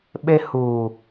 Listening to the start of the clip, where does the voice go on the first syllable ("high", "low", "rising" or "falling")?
high